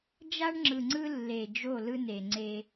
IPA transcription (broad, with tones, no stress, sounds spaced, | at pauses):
d͡ʒ a˦ ɳ ŋ͡ǁ ɯ˨ ŋ͡ǀ ɯ˦ lː e˨ d͡ʒ o˦˨ l ɯ˦ n e˨ ŋ͡ǀ e˦